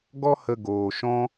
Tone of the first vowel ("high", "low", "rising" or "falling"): high